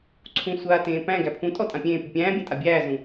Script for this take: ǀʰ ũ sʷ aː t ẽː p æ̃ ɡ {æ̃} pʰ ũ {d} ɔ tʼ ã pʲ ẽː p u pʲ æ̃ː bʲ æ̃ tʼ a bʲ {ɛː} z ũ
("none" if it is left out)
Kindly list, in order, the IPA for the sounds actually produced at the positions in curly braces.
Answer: æ, tʼ, æː

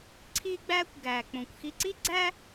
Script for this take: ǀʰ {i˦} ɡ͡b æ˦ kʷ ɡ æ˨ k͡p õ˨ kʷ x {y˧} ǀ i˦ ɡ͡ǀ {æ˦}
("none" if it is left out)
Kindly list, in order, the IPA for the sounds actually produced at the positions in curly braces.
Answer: i˦, i˧, æ˦

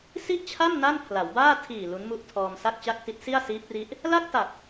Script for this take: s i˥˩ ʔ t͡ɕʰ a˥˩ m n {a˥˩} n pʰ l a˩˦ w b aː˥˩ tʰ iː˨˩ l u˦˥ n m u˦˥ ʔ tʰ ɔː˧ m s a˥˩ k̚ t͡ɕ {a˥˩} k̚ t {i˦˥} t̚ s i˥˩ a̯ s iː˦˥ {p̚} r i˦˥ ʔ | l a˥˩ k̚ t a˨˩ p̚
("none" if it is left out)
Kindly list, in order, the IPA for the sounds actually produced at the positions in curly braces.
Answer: a˥˩, a˥˩, i˦˥, p̚

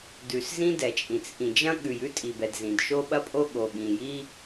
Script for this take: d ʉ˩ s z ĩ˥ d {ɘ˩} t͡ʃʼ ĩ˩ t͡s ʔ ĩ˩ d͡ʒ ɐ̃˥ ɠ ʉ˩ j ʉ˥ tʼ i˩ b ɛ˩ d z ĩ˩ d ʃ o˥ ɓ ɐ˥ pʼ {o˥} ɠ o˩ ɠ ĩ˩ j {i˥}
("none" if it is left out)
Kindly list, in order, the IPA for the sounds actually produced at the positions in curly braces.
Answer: ɛ˩, o˥, i˥

